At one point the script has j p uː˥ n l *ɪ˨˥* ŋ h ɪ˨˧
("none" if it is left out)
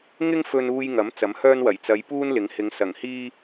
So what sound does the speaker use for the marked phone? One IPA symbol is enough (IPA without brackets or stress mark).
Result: ɪ˨˥